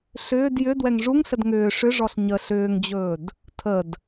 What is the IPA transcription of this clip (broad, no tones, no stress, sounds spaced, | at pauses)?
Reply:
ɬ ʏː d j ʏ d w ɛ ŋ ʐ u ŋ ɬ ə d ŋ ʏː ʂ ʏ ʐ ɔ ɬ ɲ ə ɬ ʏː ŋ d͡ʑ ɵː d | tʰ ə d